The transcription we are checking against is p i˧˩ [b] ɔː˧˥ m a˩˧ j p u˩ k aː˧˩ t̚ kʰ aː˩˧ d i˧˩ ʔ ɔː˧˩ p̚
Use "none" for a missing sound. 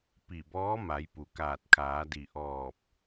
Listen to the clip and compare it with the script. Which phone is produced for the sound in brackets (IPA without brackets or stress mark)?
b